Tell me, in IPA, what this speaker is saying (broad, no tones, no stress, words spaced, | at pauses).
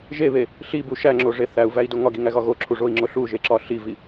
ʒeβe | ɬibu ʃæŋ͡ǁoʐe θæu̯væi̯do ŋɒɡiŋæɣɒ ɣoǁʰuʐoi̯ŋ͡ǁo ɬuʒeǁɒ ɬivi